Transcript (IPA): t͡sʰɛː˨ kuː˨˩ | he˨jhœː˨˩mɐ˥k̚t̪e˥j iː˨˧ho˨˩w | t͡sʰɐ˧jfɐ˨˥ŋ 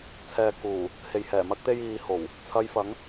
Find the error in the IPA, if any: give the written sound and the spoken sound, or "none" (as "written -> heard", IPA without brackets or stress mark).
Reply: œː˨˩ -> ɛː˨˩